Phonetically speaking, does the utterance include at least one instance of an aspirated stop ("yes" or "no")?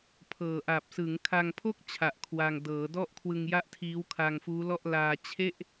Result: yes